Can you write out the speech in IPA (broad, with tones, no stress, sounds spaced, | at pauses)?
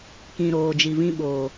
k ĩ˨ ɾ oː˨ d͡ʒ i˨ v ĩ˧ ɓ oː˨